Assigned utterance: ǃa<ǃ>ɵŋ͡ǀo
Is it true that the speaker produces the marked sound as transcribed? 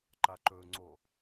yes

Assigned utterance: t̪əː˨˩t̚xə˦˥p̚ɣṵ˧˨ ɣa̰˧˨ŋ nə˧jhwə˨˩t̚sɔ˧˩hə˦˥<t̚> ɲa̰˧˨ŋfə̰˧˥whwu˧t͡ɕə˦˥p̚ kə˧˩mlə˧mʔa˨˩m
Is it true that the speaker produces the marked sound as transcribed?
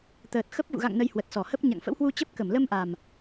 no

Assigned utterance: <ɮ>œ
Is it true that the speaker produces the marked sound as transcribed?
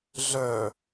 yes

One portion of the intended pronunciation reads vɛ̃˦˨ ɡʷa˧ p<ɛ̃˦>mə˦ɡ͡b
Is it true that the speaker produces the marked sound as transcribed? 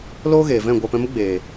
no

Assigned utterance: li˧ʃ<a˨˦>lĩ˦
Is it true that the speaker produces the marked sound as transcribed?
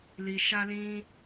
no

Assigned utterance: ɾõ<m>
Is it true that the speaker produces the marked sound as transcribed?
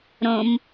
yes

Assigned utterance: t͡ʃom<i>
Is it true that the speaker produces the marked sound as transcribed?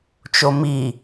yes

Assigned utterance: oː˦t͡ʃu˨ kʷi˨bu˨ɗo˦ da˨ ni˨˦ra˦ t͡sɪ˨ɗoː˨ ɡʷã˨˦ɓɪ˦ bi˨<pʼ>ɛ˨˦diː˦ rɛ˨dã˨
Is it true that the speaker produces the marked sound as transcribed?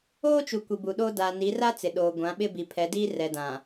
no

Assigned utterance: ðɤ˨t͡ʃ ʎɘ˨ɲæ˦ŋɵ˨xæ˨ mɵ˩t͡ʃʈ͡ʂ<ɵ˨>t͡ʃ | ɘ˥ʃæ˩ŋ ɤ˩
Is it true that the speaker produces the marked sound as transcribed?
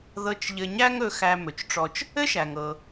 no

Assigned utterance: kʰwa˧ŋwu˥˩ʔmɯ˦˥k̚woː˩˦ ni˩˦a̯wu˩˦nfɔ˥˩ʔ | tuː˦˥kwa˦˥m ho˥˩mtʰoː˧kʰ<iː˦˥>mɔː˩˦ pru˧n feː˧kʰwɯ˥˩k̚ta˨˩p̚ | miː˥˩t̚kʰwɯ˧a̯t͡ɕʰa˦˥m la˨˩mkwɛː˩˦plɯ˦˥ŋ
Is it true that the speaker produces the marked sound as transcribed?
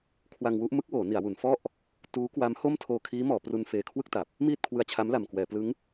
yes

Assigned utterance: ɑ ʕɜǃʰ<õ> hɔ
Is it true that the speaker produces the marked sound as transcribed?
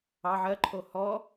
no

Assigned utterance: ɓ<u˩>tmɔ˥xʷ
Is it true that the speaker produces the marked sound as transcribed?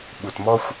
yes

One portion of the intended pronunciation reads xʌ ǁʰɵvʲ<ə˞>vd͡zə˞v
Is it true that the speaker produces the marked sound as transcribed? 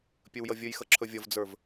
no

